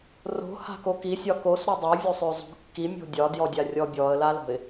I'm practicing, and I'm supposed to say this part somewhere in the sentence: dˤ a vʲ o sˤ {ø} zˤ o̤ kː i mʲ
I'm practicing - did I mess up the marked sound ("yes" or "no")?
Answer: no